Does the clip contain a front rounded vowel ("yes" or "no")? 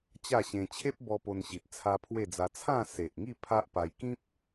no